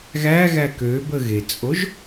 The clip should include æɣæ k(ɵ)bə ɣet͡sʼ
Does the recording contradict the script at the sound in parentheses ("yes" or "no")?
yes